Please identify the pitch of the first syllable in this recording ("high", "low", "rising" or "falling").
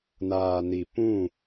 low